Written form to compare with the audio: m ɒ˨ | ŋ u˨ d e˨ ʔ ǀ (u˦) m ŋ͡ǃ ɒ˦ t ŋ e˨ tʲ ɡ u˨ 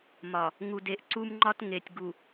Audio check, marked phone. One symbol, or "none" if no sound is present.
u˦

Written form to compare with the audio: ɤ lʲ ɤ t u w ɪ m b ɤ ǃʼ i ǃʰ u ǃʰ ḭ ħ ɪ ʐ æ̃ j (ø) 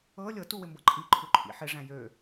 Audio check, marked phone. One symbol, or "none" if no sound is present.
ø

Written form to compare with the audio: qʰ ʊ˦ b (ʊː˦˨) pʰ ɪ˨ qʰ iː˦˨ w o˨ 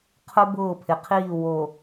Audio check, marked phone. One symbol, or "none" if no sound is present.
ʊː˦˨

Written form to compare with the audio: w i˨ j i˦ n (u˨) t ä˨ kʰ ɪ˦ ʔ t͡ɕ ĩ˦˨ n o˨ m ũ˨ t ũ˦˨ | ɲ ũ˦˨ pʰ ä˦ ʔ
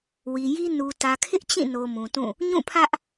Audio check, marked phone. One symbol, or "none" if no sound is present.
u˨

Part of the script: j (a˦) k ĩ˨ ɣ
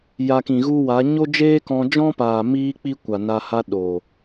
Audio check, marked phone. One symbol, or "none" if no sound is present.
a˧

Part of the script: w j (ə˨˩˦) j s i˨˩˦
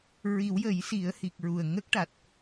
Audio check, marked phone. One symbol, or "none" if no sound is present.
ə˨˩˦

